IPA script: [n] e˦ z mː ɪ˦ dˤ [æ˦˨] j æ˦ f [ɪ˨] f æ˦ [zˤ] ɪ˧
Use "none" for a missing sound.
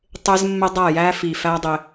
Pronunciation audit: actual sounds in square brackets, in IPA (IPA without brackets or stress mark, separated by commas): tˤ, æ˦˨, i˨, dˤ